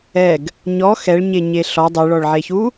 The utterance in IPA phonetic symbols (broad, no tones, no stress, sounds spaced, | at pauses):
ɛ ɡ | ɲ ɔ x ɛ ɭ ɲ e ɲ e ɬ ɔ dˤ ɪ ɭ ɔ ɭ ʕ e ç u